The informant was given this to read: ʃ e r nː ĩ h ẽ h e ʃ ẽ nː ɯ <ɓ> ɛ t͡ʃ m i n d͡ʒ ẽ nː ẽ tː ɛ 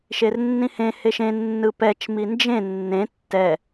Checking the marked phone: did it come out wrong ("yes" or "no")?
yes